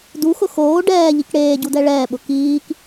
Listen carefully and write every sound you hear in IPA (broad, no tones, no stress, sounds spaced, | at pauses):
d u x ʊ x oː ɖ ɛː ʎ i k ɽ eː ɟ u d ɛ ɭ ɛː ɓ ʊ k iː k